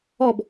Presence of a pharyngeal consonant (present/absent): absent